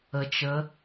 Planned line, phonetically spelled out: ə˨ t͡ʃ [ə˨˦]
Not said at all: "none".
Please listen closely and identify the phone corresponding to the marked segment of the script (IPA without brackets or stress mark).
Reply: ə˨˦